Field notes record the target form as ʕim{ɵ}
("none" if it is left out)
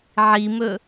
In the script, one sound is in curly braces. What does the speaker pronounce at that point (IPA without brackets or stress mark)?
ɵ